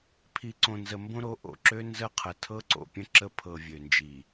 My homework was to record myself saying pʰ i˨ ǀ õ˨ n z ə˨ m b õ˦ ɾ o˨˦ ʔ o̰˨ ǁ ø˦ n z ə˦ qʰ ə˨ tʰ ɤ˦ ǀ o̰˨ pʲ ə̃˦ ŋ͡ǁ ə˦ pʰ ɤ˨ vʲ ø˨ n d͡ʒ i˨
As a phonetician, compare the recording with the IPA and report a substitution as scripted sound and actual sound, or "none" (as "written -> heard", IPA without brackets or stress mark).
ŋ͡ǁ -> ǁ